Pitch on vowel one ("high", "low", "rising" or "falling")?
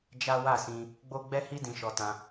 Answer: high